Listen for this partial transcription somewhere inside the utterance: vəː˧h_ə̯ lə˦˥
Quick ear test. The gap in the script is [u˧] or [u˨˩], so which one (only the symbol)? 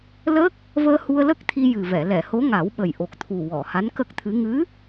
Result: u˧